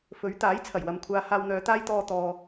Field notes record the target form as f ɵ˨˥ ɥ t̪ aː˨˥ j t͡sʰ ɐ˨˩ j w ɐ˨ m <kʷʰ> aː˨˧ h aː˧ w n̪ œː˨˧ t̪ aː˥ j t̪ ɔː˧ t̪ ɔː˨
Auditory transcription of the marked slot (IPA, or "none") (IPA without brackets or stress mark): kʷʰ